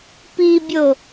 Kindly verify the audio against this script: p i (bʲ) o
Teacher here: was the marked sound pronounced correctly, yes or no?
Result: yes